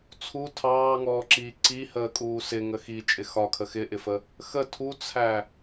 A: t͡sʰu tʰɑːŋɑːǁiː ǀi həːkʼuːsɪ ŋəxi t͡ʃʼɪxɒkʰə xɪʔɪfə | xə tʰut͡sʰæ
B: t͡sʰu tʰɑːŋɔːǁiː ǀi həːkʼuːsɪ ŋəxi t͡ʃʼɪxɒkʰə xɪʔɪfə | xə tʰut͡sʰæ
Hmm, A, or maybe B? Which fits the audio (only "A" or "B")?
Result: B